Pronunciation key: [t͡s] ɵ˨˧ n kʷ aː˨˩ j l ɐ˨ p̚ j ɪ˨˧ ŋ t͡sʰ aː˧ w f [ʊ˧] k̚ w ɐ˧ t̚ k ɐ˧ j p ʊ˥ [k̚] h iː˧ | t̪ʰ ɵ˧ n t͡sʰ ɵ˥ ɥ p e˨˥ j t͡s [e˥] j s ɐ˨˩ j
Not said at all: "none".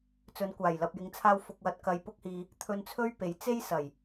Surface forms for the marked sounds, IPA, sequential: t͡s, ʊ˧, k̚, e˥

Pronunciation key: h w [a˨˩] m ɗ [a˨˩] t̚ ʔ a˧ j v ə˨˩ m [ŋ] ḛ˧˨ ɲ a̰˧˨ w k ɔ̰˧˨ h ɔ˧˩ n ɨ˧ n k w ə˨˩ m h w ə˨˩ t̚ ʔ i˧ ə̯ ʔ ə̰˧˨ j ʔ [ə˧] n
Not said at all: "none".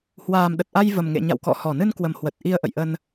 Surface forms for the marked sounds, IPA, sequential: aː˨˩, ə˨˩, ŋ, ə˧

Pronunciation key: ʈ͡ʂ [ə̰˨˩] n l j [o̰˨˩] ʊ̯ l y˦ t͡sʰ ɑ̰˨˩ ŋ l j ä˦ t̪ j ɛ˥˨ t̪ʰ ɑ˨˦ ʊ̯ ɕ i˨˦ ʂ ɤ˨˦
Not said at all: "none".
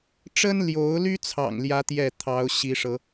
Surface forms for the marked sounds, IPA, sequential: ə˦, o˨˦

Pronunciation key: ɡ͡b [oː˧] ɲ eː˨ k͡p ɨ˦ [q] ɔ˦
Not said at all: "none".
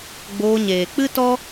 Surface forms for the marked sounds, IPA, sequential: oː˧, t

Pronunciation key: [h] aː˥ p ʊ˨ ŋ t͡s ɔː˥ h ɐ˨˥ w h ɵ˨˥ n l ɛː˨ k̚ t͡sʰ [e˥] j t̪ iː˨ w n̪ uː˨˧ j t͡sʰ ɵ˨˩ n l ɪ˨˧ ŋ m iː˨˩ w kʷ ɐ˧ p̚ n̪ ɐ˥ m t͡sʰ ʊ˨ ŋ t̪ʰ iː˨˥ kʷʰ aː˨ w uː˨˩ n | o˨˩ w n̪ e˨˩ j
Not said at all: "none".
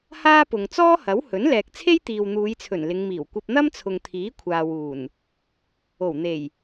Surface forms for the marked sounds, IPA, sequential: h, e˥

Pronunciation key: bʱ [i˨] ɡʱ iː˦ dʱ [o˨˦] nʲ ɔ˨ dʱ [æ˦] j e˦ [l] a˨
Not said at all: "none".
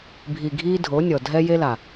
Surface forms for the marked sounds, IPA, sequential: i˨, o˨˦, ɛ˦, l

